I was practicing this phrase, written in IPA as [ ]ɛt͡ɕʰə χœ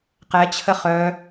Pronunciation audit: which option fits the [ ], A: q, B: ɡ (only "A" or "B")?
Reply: A